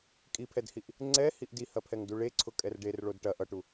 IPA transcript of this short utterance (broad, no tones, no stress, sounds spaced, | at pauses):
kʼ i pʰ ɛ d h i ʔ | ŋ͡ǀ ɛ h i ʔ d i h ɐ pʰ ɛ ŋ d u ɭ e ǀʰ ʊ kʼ ɛ r ɖ e r ɭ o d ʈ ɐ ʔ ʌ ʈ u